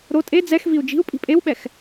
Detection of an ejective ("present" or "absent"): present